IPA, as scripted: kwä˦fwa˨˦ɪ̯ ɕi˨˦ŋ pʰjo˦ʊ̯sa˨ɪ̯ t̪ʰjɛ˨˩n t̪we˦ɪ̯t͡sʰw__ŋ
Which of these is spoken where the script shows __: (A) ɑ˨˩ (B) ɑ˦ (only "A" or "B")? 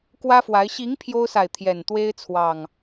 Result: A